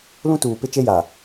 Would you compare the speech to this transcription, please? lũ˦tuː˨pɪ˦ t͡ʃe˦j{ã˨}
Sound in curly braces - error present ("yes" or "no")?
yes